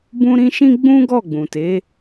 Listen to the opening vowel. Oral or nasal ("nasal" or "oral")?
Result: nasal